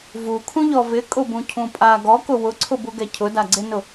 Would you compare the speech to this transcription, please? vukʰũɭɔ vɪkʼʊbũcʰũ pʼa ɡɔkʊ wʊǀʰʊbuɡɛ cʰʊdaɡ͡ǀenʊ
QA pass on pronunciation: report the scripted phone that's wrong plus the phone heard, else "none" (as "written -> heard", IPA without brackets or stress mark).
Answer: ɭ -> ʎ